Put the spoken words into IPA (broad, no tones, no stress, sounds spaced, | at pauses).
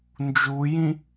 n d͡ʒ u j ĩ